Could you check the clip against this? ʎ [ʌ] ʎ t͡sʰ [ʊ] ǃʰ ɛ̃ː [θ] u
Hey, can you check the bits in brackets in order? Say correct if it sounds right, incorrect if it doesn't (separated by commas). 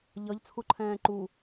correct, incorrect, incorrect